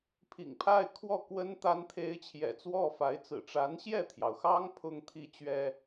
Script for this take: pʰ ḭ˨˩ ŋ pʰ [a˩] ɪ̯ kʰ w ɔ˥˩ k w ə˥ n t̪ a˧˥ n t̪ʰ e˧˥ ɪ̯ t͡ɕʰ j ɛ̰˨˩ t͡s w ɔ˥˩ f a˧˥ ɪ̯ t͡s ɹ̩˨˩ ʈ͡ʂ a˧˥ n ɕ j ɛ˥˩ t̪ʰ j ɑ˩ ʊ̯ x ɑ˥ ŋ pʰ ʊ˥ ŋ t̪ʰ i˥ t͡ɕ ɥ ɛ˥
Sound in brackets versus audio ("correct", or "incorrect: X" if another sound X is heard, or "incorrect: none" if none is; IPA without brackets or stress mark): incorrect: a˥˧